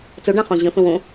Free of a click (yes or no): yes